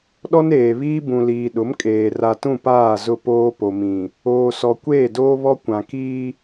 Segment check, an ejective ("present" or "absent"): present